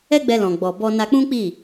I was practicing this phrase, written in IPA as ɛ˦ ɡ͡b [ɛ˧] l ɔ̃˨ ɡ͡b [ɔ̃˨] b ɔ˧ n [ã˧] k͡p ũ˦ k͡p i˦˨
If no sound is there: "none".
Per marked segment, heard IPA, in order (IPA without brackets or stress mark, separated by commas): ɛ˧, ɔ˨, a˧